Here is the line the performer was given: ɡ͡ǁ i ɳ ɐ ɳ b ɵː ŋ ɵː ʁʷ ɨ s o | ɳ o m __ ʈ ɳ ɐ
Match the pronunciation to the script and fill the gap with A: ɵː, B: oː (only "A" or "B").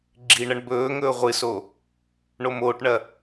B